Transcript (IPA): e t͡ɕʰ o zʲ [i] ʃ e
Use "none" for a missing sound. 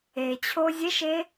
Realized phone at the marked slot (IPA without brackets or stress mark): e